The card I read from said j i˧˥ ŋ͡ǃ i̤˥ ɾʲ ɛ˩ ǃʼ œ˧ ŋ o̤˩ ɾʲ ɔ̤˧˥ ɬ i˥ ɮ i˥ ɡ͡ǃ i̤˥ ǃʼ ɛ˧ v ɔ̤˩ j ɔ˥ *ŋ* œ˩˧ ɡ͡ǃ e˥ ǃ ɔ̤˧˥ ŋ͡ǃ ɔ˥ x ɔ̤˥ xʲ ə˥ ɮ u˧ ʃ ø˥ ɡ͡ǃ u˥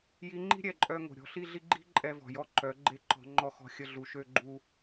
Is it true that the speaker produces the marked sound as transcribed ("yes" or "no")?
no